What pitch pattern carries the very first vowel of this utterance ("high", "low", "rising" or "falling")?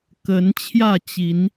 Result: rising